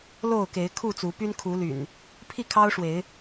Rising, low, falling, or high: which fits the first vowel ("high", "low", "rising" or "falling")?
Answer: falling